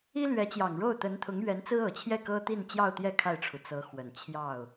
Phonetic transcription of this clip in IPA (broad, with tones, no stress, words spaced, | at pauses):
i˥lɥɛ˧˥t͡ɕjɑ˨˩ŋɻo˥˩ʊ̯ t̪ə˧˥nt̪ʰʊ˧˥ŋ ɥɛ˧˥nt͡sɹ̩˥ɤ˨˩t͡ɕʰjɛ˥˩ kɤ˥t̪i˥˧nt͡ɕjɑ˥˧ʊ̯t̪jɛ˥˧ kʰa˥˩ɪ̯ʈ͡ʂʰu˩ t͡sɤ˧˥xwə˨˩n t͡ɕʰjɑ˥˩ʊ̯